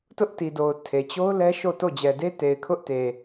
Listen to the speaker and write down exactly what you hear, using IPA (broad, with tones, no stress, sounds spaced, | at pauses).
t ʊ˦ ʔ t i˨ d o˨ ʊ̯ tʰ e˨ t͡ɕ o˦ ʊ̯ l ɛ˦ ʃ o˦˨ t o˦˨ d͡ʑ ɛ˨ d e˦ t e˨ ɪ̯ kʰ ʊ˦ ʔ t e˨